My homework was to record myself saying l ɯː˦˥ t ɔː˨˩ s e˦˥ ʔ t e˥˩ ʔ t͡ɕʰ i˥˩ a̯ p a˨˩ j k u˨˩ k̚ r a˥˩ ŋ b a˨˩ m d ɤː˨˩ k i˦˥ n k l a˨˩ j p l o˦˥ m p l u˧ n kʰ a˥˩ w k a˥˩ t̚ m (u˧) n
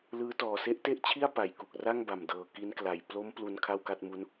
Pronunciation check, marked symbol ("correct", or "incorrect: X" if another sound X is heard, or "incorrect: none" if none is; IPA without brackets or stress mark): incorrect: u˦˥